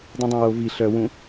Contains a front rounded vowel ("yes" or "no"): yes